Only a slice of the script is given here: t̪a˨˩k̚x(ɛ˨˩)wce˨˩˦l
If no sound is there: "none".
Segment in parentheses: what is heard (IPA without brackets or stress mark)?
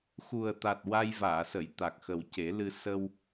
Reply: ə˨˩